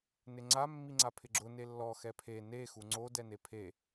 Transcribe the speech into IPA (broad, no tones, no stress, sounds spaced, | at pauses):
n ɪ ŋ͡ǀ a mː i ŋ͡ǀ a pʰ ɪ ɡ͡ǁ ʊ n e lː ɔ x ɛ pʰ e n e x u ŋ͡ǀ o d ɛ n e pʰ e